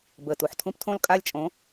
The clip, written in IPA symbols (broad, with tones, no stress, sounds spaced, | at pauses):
b əː˨˩ t u˨˩ ħ tʰ ũ˦ p tʰ õ˦ l kʼ a˦ lʲ t͡ʃʼ õ˨˥